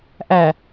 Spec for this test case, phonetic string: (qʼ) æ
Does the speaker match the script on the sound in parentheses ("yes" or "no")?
no